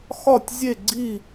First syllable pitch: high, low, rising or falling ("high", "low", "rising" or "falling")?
falling